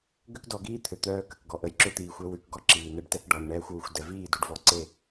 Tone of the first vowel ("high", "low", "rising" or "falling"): high